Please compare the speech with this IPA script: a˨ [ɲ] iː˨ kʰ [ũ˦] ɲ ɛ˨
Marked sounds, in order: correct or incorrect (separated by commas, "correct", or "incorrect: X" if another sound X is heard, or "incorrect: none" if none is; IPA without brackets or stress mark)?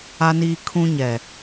incorrect: n, correct